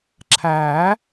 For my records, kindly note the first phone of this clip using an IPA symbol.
ǁʰ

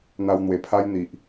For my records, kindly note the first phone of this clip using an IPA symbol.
n̪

